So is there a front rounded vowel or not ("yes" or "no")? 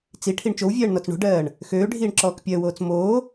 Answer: yes